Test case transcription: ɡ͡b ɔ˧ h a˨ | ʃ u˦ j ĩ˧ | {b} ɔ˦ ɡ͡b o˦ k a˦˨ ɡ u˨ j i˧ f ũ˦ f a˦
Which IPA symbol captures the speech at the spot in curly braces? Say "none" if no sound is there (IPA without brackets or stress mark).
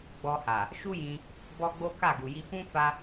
b